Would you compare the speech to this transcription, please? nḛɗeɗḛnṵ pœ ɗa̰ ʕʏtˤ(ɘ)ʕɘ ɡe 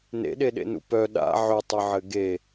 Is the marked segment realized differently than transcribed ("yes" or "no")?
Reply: no